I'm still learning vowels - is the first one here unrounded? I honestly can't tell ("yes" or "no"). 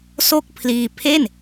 no